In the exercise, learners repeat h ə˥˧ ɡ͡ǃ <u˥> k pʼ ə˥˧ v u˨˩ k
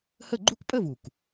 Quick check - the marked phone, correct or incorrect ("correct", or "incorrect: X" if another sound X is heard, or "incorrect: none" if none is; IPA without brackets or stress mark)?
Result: correct